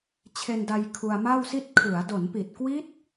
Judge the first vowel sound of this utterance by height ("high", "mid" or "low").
mid